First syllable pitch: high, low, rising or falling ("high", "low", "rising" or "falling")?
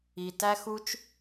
low